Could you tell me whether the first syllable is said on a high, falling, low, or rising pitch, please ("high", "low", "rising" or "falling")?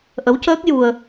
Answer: rising